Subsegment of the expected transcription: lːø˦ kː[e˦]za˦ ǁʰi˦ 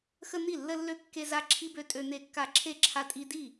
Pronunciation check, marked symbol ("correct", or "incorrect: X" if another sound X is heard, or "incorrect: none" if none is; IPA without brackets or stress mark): correct